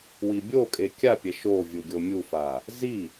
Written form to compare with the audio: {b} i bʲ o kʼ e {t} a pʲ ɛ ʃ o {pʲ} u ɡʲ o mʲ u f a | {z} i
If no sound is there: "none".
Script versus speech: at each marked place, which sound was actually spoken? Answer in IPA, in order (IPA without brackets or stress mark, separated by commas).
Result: w, kʲ, vʲ, z